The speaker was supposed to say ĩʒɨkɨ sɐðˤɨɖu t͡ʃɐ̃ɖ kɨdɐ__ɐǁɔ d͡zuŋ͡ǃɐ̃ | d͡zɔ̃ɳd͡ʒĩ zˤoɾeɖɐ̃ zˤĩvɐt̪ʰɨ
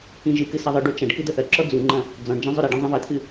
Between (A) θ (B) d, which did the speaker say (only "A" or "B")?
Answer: A